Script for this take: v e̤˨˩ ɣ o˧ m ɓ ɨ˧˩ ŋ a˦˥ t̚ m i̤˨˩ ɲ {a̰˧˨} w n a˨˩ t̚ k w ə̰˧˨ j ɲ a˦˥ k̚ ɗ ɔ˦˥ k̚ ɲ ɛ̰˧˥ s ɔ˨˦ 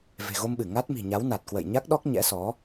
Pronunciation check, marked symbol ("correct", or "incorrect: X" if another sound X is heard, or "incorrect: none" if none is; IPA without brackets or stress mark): incorrect: a˨˦